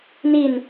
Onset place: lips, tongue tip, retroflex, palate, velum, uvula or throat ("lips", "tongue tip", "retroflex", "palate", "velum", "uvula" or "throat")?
tongue tip